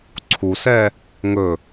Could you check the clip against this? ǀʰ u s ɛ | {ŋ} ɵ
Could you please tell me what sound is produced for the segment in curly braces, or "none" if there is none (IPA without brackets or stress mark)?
ŋ